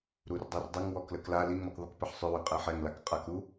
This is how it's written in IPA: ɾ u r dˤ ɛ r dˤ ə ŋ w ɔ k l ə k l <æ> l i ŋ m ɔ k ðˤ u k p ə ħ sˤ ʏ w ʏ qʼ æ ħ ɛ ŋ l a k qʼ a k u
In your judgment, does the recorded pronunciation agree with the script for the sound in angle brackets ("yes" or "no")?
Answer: no